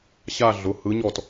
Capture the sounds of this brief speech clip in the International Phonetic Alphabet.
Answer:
ɕ a˥˧ ɮ ʊ˩˧˩ h ɯ˧˥ ɲ ɔ˥˩ t

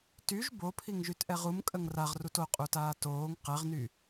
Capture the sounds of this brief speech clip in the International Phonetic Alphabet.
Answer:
t y ʒ b o pʰ i ŋ ʒ y t ʔ ɛ ʁ u m kʼ ə ŋ r a ʁ r u t o qʼ u t aː t oː ŋ q ɛ ʁ n y

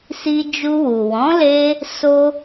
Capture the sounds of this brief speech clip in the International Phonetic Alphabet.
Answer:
s i˧ d͡ʒ u˧ w u˨ w ɔ̃˨˦ l e˦ | s o˧

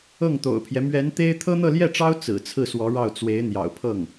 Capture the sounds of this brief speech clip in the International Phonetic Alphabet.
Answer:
ɤ˥˩ ŋ t̪ o̰˨˩ ʊ̯ pʰ j ɛ˦ m ɥ ɛ˧˥ n t̪ e˥ ɪ̯ t̪ʰ ɤ˥ n̪ ɤ˥˧ l j ɛ˥˩ ʈ͡ʂ ɑ˥ ʊ̯ t͡s ɹ̩˨˩ t͡sʰ ɹ̩˥˩ s w ɔ˧˥ ɻ ɑ˥˩ ʊ̯ t͡s w e˧˥ ɪ̯ n̪ j ɑ̰˨˩ ʊ̯ pʰ ɤ˥˩ ŋ

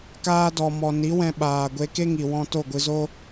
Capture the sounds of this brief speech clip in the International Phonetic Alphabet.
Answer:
k aː˧ d ɔ˨ m ɔ˨ n i˨˦ w ɛ̃˧ ɓ aː˨ ɡʷ e˧ k e˦ ŋ i˨ w ɔ̃˧ t o˦˨ ɡʷ ɨ˧ z o˦

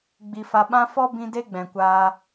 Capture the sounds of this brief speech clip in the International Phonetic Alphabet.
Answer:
ɡ͡b i˧ f a˧ ɓ ã˦ f ɔ˦ b ĩ˦ d e˦ ɡ͡b ɛ̃˨ kʷ aː˧

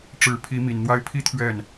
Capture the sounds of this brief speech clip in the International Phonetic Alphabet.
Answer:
ʈ͡ʂ ɻ̩˨˩ pʰ i˧˥ m i˨˩ n n̪ w a˥ ɪ̯ pʰ i˥ t̪ʰ ɥ ɛ˥˩ n

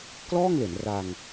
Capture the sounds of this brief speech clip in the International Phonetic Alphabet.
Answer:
k l ɔː˥˩ ŋ l e˩˦ n r a˧ ŋ

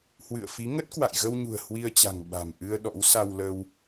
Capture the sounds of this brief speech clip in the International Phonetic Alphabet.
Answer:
h w ɨ̰˧˨ ə̯ f i˨˦ ŋ ə˦˥ t̚ k w a̰˧˨ j ɣ ə˧ w ɲ ṳ˨˩ ə̯ h w i˧ ə̯ t͡ɕ a̤˨˩ ŋ ɓ a̤˨˩ m ʔ ɨ˧ ə̯ ɗ ɔ̰˧˥ w s a˧ w l ə˧ w

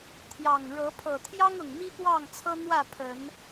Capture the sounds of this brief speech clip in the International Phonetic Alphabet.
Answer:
t̪ʰ j ɑ˨˩ ŋ ɻ ɤ˨˦ pʰ ɤ˨˩ t̪ʰ j ɑ˦ ŋ ʊ˨˩ ŋ m i˦ p w ɑ˥˨ ŋ t͡sʰ ɤ˦ n̪ w ä˥˨ pʰ ə˨˦ n

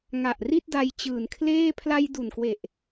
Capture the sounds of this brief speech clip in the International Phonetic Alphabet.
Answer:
ŋ a˨˩ ʔ r i˥˩ t̚ d a˧ j t͡ɕ ɯː˨˩ n kʰ l eː˥˩ pʰ l a˧ j d u˨˩ n k w e˨˩ ʔ

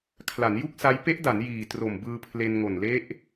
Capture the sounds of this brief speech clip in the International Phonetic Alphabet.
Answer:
kʰ l a˩˦ n j u˥˩ k̚ s a˦˥ j p e˦˥ ʔ d a˩˦ n j iː˨˩ t r o˨˩ m b ɯː˧ pʰ l e˧ n ŋ o˨˩ n l e˦˥ ʔ

